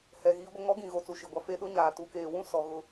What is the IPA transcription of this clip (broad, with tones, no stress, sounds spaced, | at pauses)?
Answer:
h ɛ˨ ɣ iː˦ ɡʷ ɪ˦ ŋ ɔ˦ ɡ ĩ˨ ɣ o˨ t͡s u˨ ʃ i˨ ɡʷ a˦ f e˦ ɗ ʊ˦ ɲ aː˨ t u˨ k eː˨ w ũ˦ s ɔ˨ ɣ ʊ˨